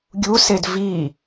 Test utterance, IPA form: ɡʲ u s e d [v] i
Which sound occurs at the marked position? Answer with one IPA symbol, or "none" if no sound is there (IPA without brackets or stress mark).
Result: v